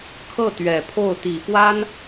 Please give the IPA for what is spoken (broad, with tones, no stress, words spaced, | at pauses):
kʰɤ˥˩t̪ɥɛ˨˩pʰo˥˩ʊ̯ t̪i˨˩fwa˥n